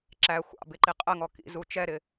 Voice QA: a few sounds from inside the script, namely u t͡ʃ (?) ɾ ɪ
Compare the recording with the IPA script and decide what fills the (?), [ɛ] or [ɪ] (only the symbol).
ɛ